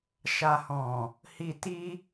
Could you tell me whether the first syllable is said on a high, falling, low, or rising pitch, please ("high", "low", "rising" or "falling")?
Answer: low